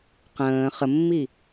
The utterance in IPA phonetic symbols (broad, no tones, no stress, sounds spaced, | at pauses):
q ə̃ː χ ə mː i